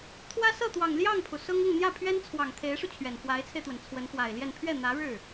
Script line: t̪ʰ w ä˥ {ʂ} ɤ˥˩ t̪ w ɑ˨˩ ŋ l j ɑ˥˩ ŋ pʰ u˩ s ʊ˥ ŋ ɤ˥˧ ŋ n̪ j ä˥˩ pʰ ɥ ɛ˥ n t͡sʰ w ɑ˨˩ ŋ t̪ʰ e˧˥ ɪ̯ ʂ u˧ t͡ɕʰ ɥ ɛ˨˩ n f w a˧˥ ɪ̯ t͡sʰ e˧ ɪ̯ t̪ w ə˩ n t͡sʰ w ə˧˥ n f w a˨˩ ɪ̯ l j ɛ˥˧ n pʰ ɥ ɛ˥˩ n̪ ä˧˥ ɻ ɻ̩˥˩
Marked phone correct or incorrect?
incorrect